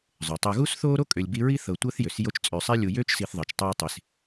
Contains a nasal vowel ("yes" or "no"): no